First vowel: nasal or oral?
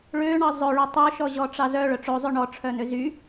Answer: oral